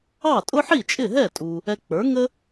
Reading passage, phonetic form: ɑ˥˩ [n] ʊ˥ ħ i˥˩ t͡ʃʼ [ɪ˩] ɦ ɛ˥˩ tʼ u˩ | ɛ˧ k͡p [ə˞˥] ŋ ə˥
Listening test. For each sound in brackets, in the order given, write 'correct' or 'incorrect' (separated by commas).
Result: incorrect, incorrect, incorrect